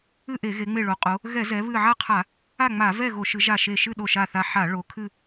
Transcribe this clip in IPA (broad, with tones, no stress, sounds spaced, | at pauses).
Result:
ɨ˥˨ ʔ e˧˩˧ ɣ e˩˧ ŋ͡m e˧˩ ɭ o˩˧ qʼ o˩˧ | ɣ ɛ˧˩˧ z ɛ˩˧ β ɨ˧˩ ʕ a˥˨ qʰ a˧˩˧ | a˥˨ ŋ͡m a˧˩˧ v ɛ˥˨ ɣ o˧˩˧ ʃ ɨ˩˧ ʒ a˧˩ ʃ e˧˩ ʃ ɨ˥˨ ɗ o˧˩ ʃ a˧˩ θ a˧˩ ħ a˧˩˧ ɭ o˩˧ kʰ ɨ˥˨